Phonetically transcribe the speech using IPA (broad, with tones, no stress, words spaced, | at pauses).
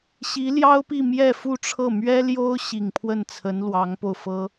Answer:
ɕi˧˥ljɑ˥ʊ̯pi˥˧ mjɛ˥˧fu˥˧ʈ͡ʂʰɤ˥˩ mɥɛ˥ljo˥ʊ̯ ɕi˨˩ŋpʰwə˥˩nt͡sʰə˧˥n lwɑ˧˥ŋpo˧ʊ̯fɤ˥